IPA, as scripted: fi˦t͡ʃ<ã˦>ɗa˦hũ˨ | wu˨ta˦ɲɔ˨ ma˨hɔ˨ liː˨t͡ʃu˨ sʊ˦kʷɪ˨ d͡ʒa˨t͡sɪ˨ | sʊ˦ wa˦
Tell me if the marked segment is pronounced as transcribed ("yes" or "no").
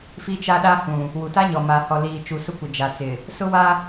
no